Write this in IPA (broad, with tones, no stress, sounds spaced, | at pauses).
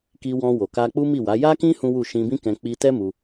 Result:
k i˧ w ɔ̃˧ w o˨ k a˧ k͡p u˦ m i˦˨ w a˨˦ j a˦ k ĩ˦ h ũ˦ w u˦˨ ʃ ĩ˧ b ĩ˦ k ɛ̃˧ k͡p i˧ t ɛ˦ m u˧